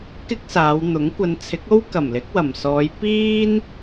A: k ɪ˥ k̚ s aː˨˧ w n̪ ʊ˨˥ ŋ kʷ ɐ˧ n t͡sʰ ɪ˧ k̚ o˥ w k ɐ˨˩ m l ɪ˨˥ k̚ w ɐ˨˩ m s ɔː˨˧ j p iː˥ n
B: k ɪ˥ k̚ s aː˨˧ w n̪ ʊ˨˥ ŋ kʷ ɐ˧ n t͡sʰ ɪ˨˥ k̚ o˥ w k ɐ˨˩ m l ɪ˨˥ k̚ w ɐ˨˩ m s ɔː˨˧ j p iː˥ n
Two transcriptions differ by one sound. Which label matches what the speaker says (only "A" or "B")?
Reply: B